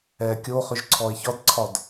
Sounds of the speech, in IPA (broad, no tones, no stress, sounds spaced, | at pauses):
ɛː kʲ o χ ʏ ʒ ǀʰ ɔ e̯ ç ɒ d ǀʰ ɒ d